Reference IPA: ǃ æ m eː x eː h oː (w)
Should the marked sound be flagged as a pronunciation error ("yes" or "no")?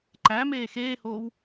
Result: no